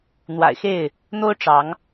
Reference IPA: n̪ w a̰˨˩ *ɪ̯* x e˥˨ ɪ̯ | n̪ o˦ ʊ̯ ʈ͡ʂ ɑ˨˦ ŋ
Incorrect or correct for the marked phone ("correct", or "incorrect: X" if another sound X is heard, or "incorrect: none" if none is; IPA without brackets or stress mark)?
correct